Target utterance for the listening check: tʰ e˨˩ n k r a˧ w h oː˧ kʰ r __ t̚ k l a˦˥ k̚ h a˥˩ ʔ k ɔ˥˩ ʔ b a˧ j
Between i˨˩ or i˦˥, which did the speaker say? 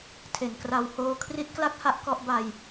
i˦˥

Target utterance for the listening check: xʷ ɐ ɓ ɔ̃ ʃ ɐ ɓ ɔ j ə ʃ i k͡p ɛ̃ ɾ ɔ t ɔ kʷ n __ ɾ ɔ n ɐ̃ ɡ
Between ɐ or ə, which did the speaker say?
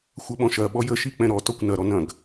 ɐ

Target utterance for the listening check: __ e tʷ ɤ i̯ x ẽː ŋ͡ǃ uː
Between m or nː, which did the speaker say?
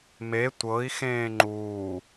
m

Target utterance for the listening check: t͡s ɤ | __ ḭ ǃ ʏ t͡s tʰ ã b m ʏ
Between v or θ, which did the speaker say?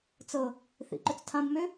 θ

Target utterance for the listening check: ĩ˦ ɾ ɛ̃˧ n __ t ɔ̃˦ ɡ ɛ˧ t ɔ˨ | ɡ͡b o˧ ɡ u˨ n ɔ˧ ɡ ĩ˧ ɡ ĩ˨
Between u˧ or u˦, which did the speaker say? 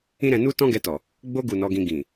u˦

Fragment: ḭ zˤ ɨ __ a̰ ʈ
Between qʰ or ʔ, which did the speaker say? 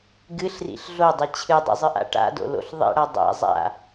ʔ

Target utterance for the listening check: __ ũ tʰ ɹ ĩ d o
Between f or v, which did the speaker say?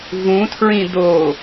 v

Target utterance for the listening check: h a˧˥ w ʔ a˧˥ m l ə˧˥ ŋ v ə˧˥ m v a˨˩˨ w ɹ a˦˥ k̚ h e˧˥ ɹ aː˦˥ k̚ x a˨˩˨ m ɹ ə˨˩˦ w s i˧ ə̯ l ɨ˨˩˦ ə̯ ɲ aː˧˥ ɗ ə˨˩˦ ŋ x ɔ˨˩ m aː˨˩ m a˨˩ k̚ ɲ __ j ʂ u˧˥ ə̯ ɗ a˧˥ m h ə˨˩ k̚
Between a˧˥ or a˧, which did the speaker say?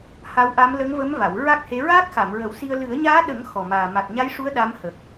a˧˥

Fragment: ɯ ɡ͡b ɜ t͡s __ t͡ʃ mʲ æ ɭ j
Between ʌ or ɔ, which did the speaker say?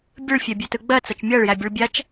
ʌ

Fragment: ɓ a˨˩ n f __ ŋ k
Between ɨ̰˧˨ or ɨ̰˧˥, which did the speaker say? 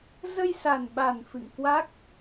ɨ̰˧˨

